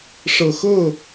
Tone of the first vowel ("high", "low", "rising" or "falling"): low